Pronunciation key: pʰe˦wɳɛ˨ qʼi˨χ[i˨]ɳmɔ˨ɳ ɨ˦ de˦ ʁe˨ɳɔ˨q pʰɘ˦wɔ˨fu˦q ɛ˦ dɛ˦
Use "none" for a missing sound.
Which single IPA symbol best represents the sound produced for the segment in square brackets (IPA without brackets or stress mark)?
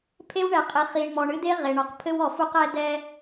i˨